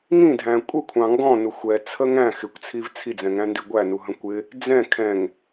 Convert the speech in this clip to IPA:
ŋ ĩ dʱ æ̃ kʷʼ ə kʷʰ ɑ̃ ŋ ɡ ɔ̃ n ʊ xʷ ɛ t͡sʰ ə ŋ æ̃ x ɪ kʷ t͡sʰ i v t͡sʰ i d͡z ɛ̃ ŋ æ̃ n d i ɡʷ æ n u ɦ ə̃ kʷ ɪ | d͡z ɛ̃ kʰ ɛ̃ ŋ

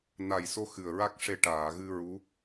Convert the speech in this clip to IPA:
n a˨˩ j s o˧ x ɨ˨˩ ə̯ ɹ a˦˥ k̚ ʂ e˧ ʈ aː˨˩˨ ɣ ɨ˧ ɹ u˧˥

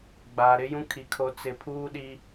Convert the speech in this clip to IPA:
ɡ͡b aː˨ ɾ ɪ˦ j ũ˦ kʰ i˨ kʰ o˨ t͡s ɪ˨ pʰ uː˦ ɗ i˦

